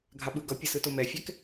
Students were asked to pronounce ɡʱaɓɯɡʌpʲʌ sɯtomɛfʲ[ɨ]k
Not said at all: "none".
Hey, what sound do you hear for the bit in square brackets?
ɛ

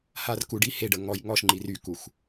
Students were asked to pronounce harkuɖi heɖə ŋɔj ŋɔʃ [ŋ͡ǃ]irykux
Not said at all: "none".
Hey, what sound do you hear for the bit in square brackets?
ŋ͡ǃ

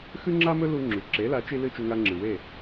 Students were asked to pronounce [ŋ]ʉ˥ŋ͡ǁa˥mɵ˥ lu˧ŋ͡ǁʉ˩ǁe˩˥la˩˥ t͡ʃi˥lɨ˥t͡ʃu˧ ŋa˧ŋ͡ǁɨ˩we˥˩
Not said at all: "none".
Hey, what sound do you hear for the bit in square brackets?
x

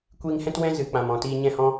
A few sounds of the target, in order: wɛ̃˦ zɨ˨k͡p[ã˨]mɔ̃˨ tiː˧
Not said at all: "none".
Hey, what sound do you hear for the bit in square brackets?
ã˨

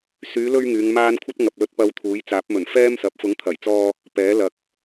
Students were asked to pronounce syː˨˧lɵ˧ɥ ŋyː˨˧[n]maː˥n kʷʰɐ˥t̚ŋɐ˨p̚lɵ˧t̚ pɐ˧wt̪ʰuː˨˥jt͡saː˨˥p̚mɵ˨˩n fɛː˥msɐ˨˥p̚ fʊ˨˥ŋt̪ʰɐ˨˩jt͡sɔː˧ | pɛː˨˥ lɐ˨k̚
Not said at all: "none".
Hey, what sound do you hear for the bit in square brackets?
ŋ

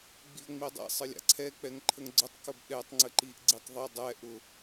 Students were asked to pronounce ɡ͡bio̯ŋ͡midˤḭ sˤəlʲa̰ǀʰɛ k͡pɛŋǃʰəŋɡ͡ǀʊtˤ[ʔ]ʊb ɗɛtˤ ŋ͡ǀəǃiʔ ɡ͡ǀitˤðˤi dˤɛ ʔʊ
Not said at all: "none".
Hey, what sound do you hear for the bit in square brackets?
k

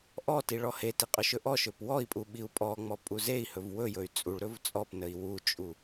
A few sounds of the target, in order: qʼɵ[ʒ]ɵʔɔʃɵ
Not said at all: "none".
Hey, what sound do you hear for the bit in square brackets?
ʃ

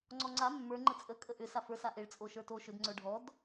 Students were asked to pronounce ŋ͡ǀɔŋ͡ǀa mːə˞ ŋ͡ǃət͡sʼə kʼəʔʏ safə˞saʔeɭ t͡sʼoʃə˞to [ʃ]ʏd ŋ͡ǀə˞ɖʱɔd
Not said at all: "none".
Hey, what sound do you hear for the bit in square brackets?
ʃ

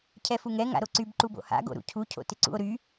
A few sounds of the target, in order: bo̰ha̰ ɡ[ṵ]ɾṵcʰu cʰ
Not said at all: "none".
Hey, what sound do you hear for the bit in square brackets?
o̰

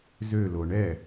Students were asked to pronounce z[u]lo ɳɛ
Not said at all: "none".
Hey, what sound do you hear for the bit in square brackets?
ø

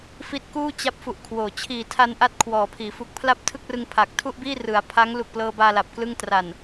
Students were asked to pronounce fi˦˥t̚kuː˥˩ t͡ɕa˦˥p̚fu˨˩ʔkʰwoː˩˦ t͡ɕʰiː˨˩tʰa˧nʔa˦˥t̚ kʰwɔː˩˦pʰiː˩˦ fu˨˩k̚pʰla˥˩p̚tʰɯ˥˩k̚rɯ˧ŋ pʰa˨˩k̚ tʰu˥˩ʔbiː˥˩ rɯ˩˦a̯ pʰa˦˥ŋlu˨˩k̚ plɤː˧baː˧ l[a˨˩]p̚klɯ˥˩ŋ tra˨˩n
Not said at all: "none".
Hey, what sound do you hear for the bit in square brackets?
a˨˩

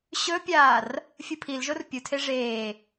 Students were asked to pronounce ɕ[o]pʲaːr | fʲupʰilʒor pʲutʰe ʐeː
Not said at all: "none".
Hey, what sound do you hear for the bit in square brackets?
ɵ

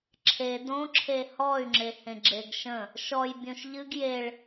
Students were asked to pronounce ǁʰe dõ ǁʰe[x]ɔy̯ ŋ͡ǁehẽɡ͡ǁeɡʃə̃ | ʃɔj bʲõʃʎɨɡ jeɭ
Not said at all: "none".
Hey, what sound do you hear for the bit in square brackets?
h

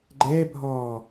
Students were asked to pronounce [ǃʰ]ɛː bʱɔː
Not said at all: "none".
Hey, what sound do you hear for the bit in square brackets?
ɡ͡ǃ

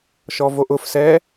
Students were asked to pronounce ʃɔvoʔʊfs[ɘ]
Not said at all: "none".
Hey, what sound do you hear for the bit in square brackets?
ɛ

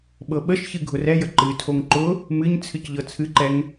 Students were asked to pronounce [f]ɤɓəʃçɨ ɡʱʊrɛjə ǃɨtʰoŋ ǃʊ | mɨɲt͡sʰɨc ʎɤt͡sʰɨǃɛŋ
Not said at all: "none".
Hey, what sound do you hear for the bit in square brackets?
ɓ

